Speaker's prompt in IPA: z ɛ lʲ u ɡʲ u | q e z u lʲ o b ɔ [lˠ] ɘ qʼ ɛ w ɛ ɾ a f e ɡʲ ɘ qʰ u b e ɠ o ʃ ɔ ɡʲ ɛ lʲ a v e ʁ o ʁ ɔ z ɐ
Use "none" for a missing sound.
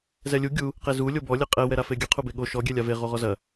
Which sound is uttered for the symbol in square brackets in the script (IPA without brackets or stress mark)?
lʲ